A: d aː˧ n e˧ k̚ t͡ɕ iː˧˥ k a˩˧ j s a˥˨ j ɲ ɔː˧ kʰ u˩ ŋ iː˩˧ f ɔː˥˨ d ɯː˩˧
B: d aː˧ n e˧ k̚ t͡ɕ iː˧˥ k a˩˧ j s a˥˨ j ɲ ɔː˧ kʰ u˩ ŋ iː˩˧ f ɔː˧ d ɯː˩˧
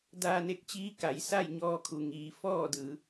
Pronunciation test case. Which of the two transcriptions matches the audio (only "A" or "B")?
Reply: A